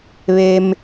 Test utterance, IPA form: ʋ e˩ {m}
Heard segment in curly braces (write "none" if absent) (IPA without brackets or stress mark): m